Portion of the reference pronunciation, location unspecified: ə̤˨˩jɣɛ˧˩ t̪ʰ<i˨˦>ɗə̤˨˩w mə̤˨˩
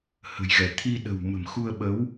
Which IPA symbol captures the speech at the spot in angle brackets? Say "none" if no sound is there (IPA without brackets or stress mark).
i˧